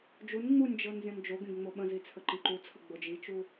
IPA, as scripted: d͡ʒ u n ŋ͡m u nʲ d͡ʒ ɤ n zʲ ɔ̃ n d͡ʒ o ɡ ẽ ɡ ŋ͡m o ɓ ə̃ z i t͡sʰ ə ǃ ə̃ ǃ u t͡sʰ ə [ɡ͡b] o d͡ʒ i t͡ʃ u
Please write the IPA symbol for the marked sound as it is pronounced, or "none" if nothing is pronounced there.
ɡ͡b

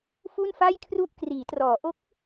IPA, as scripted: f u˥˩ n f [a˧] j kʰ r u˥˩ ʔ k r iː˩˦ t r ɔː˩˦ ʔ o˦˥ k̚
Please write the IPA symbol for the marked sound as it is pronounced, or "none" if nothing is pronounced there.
a˥˩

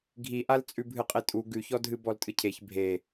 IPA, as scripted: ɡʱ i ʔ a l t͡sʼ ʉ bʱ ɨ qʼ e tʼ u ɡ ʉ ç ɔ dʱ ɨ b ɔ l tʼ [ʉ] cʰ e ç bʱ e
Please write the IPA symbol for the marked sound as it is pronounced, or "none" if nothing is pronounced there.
ɨ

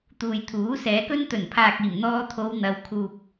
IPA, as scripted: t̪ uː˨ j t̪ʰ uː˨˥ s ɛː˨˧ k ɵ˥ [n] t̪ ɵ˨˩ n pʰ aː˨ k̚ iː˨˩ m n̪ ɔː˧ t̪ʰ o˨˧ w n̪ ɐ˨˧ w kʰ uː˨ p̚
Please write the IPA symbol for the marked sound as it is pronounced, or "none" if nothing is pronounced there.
n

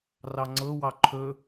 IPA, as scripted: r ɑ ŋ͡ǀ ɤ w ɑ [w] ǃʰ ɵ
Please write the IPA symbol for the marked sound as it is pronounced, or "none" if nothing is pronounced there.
none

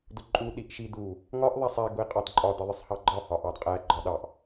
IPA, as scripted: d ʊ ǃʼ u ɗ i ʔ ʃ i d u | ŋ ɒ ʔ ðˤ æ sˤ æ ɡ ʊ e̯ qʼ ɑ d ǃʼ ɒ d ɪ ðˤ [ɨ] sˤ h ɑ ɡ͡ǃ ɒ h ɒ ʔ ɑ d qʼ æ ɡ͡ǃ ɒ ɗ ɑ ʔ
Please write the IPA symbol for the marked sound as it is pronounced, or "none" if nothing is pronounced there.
ɪ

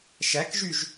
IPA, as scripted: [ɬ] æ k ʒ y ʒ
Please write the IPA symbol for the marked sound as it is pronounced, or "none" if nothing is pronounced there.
ʃ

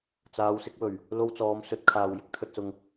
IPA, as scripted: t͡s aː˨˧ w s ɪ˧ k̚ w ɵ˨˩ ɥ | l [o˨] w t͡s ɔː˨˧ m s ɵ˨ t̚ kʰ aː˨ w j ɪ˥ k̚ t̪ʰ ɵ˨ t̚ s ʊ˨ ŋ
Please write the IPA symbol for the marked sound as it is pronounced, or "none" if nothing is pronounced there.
o˧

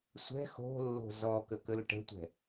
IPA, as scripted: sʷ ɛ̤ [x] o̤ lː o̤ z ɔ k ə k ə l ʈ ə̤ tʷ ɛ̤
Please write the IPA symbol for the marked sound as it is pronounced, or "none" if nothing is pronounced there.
x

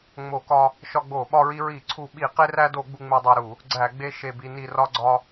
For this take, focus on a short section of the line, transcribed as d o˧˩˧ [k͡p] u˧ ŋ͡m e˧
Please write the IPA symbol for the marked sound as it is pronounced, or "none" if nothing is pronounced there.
ɡ͡b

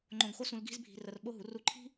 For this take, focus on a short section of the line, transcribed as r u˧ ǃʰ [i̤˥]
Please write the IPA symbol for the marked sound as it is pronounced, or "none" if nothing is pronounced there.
i̤˥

